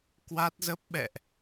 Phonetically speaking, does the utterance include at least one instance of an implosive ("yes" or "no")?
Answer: yes